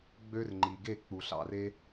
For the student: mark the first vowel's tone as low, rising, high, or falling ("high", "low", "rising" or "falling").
high